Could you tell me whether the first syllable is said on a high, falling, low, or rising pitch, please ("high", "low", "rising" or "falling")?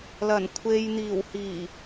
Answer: low